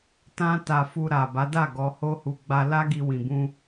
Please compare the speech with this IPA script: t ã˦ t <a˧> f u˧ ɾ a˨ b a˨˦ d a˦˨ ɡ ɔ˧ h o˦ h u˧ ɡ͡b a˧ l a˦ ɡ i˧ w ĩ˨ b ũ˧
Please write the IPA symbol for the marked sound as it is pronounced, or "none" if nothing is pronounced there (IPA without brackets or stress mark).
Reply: a˧